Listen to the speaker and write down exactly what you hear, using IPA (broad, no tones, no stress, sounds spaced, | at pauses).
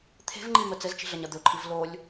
t̪ʰ e̤ v ŋ͡ǃ i m ə t͡s ɘ z t͡ʃ i̤ ɮ ɐ ɲ ɐ d̪ ɵ ǃʰ i v l o lʲ